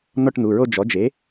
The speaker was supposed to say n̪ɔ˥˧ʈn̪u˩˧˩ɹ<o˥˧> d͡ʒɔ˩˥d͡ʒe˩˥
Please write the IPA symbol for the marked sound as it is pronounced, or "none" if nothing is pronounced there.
o˥˧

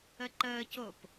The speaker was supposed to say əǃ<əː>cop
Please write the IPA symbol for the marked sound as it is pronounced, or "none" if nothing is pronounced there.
əː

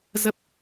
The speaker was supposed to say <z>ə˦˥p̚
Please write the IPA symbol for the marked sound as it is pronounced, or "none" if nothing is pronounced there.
z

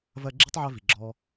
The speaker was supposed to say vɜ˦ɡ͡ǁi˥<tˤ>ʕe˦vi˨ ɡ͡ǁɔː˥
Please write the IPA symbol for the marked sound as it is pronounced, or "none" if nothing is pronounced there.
tˤ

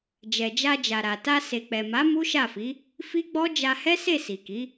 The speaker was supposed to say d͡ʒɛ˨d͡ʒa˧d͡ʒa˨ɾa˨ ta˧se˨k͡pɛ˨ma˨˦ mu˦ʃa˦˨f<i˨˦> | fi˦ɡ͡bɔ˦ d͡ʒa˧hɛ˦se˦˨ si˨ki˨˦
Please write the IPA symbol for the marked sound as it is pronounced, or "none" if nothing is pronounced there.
i˨˦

